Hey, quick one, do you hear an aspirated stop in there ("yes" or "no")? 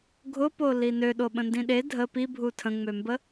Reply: yes